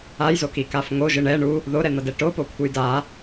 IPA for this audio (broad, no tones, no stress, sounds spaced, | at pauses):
a j z o k i k a f ŋ o ʒ ɯ ɳ ɛ ɳ u | ð o ɾ ɛ n̪ ʌ d ɛ ʈ o p o kʷʰ ɯ j d a